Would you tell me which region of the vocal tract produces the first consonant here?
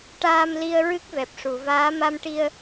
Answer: retroflex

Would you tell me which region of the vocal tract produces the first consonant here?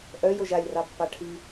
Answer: throat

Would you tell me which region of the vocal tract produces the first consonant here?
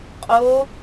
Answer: uvula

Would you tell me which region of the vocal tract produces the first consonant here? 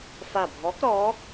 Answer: lips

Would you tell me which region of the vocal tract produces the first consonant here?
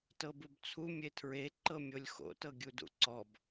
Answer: tongue tip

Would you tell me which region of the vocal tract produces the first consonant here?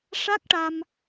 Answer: retroflex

